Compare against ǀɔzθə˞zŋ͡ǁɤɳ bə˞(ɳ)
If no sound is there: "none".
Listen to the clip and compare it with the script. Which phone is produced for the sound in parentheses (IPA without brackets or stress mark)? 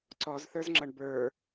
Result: none